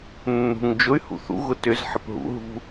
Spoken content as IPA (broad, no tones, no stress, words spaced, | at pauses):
nːṳŋ d͡ʒʊy̯ hṵθṵ ɣʊtʏz ħɪpɦṵɦṳ